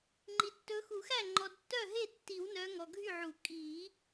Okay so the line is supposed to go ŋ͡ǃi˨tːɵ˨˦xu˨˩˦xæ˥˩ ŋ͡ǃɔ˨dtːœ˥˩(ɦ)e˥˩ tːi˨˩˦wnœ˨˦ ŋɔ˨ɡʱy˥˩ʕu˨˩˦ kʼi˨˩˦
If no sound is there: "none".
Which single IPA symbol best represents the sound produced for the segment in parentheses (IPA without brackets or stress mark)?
ɦ